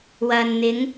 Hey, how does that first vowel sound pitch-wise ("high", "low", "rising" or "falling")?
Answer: low